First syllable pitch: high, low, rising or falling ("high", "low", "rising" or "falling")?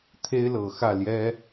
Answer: high